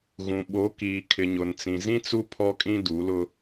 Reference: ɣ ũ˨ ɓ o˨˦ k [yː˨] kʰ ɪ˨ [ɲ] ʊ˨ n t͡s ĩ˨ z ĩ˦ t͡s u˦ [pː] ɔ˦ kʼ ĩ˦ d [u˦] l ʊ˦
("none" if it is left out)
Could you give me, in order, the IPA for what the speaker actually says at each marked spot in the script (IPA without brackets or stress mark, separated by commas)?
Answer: iː˨, ɲ, pʰ, u˨˦